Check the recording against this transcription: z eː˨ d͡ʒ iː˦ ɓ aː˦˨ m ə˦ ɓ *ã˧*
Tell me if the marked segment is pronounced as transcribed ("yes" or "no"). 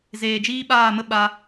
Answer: no